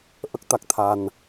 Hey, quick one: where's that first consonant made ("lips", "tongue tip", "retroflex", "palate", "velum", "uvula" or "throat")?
throat